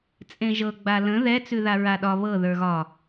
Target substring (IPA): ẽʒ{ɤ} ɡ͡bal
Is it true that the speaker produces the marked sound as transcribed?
yes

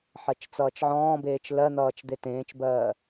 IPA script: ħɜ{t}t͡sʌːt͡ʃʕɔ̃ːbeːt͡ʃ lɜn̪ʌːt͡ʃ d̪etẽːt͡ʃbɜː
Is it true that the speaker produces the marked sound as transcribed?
no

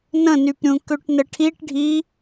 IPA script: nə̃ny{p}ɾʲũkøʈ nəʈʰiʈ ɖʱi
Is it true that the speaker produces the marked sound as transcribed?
yes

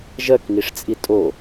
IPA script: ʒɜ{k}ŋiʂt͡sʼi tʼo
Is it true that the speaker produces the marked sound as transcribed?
yes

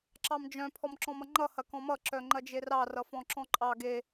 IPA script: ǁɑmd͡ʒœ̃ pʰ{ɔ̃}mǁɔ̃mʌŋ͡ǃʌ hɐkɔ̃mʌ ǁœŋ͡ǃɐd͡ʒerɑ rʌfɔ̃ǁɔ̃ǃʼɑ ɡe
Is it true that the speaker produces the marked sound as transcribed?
no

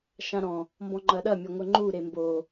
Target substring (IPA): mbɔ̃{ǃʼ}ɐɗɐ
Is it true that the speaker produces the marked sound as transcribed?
no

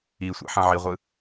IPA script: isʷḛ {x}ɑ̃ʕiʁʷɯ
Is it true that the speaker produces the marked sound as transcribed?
no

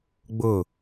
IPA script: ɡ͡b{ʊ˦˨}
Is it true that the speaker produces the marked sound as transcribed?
yes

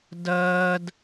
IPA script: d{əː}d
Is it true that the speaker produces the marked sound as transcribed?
yes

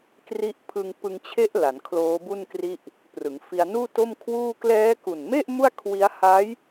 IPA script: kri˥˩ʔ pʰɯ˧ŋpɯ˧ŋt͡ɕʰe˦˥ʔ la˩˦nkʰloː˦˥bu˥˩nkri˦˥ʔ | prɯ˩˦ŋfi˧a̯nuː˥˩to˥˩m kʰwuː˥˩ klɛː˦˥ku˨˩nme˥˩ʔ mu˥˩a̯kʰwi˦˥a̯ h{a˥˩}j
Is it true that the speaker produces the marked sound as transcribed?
no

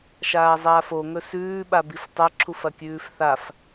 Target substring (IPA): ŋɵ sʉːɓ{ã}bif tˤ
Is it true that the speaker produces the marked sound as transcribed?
no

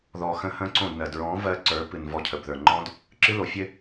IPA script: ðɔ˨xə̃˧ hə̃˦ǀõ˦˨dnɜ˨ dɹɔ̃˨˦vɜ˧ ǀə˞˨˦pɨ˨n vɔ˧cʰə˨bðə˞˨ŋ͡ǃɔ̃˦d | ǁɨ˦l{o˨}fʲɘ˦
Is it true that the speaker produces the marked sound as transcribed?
yes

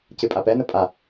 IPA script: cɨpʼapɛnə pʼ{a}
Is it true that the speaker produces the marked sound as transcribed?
yes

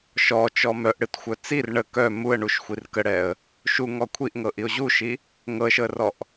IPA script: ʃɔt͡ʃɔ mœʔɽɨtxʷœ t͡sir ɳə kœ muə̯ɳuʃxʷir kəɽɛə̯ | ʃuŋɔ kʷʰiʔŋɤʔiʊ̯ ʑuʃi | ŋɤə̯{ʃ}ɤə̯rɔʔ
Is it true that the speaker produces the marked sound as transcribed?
yes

